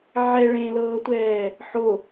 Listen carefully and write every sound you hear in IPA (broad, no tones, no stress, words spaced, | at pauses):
ʕɛ ɭẽlɤːtʷɛː | ħo